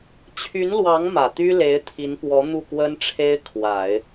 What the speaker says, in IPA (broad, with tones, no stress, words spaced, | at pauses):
t͡ɕʰy˧˥nlwɑ˧˥ŋ mä˨˩t̪y˥le˧˥ɪ̯ t̪ʰi˧˥npwɔ˧˥ n̪u˥˩kwə˥n ʈ͡ʂʰe˥ɪ̯kʰwa˨˩˦ɪ̯